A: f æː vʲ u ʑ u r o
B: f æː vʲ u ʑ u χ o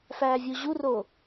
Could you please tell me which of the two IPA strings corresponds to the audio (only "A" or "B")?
A